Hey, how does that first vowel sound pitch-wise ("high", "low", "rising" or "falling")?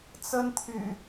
high